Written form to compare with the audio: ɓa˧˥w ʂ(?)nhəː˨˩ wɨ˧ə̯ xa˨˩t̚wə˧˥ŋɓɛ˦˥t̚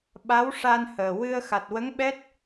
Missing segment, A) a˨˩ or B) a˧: B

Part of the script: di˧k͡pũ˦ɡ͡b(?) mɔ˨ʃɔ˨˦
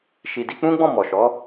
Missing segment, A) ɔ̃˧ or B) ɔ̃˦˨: B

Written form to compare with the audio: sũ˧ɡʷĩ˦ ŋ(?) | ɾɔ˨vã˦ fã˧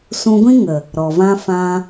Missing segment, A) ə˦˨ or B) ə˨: B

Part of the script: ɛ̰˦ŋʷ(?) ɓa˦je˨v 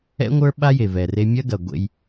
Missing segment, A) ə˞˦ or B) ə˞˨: A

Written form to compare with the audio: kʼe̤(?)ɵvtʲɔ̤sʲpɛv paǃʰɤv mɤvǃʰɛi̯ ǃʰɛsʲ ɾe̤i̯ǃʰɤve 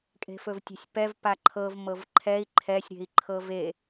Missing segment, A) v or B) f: B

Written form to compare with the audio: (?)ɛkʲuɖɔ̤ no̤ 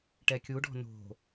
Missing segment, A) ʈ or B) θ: A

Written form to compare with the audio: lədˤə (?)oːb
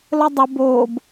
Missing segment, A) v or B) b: B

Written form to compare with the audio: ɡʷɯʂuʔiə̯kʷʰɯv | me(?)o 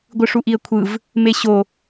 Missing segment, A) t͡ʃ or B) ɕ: B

